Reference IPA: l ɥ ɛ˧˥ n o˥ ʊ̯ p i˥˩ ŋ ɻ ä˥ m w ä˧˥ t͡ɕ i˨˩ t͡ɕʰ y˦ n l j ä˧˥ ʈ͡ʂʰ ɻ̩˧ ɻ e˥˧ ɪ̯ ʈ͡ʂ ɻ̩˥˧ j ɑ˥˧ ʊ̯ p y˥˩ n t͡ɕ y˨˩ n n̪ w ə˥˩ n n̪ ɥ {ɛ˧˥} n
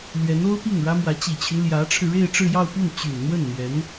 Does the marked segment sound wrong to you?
no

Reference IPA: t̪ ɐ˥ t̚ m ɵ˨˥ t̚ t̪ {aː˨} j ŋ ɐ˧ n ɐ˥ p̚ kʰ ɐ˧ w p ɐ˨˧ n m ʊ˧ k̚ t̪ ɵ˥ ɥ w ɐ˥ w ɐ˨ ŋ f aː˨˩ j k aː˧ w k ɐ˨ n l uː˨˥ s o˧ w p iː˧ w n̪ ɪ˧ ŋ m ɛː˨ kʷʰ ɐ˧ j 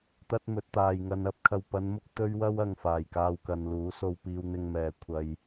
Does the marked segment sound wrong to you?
no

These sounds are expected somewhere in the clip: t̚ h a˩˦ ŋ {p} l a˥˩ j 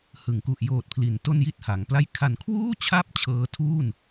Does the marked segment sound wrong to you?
no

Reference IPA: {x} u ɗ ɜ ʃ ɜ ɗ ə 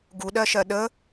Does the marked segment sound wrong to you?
yes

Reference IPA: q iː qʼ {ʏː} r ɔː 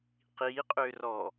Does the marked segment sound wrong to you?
no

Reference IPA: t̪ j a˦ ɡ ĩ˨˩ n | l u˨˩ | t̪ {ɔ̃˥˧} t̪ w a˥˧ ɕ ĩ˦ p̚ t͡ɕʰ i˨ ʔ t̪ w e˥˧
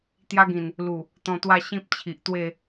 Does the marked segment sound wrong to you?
yes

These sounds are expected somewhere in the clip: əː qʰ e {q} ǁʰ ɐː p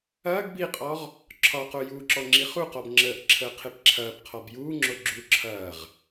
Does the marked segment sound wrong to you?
yes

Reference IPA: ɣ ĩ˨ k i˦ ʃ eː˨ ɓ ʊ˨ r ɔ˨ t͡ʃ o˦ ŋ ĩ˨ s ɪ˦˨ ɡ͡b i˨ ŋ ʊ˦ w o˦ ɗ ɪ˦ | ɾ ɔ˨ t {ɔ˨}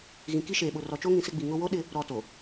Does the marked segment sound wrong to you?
yes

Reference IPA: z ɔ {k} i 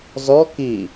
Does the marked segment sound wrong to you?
no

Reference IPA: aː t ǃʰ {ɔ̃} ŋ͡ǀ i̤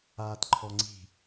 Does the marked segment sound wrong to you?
yes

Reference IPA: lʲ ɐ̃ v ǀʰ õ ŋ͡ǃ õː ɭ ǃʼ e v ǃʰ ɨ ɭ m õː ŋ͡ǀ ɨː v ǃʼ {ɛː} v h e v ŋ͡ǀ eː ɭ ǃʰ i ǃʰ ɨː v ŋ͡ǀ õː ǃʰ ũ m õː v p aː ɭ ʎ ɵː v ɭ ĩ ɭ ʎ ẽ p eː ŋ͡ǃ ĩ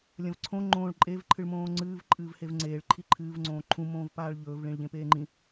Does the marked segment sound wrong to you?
yes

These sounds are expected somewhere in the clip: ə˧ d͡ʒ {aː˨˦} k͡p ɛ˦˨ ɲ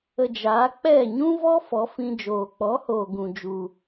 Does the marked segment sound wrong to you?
no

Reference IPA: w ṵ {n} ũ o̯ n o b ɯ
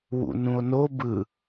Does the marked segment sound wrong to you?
no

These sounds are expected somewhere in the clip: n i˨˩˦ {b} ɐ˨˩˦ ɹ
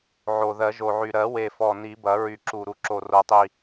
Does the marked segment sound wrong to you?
no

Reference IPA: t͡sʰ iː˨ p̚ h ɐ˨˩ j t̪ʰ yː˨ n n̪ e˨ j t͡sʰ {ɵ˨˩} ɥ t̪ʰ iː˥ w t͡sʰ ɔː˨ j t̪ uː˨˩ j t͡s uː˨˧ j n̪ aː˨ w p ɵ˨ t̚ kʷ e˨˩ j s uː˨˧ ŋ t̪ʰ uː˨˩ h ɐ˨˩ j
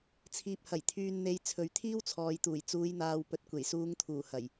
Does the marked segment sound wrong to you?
yes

